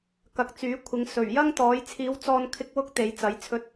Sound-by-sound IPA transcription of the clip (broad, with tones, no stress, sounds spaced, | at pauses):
k ɐ˨ k̚ t͡s yː˨˥ kʷʰ ɪ˨˧ ŋ s ɵ˨˩ ɥ j ɐ˥ ŋ t̪ ɔː˨˥ j t͡sʰ iː˨˧ w t͡s ɔː˧ n kʰ ɪ˧ k̚ w ʊ˥ k̚ t̪ e˨˥ j t͡s ɐ˨˥ j t͡sʰ ɵ˧ t̚